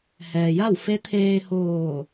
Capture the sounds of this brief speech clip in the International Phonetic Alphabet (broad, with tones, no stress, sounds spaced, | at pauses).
h ɛː˩ j a˥˨ w f e˧˥ t̪ʰ eː˧ h oː˧˩